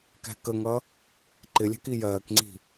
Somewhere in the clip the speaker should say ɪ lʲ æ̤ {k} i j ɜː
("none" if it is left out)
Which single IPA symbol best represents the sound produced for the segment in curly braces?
k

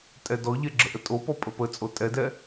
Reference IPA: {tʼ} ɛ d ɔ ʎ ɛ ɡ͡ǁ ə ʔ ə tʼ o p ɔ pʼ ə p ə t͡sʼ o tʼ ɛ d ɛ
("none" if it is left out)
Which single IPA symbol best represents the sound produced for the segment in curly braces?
tʼ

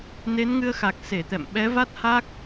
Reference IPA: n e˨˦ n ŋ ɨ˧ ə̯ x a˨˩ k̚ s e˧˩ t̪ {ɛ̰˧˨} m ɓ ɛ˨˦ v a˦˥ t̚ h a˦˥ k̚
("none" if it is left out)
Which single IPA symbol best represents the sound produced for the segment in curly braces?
ɛ̰˧˨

